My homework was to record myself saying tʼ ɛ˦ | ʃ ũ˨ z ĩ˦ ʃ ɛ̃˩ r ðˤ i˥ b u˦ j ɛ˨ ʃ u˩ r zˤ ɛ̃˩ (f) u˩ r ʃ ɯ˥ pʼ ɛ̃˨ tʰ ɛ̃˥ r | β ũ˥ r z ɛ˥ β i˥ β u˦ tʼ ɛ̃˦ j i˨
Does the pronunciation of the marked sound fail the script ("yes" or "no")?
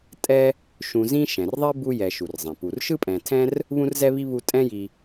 yes